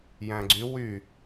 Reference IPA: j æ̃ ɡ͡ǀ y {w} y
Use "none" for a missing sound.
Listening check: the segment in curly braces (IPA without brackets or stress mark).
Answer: w